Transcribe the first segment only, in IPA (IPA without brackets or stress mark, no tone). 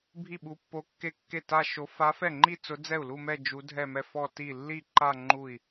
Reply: bʱ